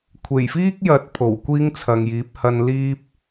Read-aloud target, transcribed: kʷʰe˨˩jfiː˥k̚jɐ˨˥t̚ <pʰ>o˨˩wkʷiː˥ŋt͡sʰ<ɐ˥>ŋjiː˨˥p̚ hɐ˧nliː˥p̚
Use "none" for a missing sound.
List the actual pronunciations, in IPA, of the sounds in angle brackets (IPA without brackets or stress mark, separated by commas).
pʰ, ɐ˨